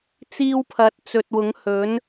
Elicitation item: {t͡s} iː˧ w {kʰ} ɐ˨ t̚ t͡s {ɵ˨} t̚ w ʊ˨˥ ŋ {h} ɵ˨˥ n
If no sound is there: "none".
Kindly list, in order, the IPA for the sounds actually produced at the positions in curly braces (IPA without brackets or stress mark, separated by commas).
t͡s, pʰ, ɵ˨, h